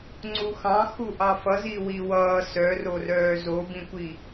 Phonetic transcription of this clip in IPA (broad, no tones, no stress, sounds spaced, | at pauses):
ŋ͡ǀ u x ɑ̃ x u ʔ ɑ f ʌ z i w i w ʌː s œ r o r œː z o b ĩ kʷ i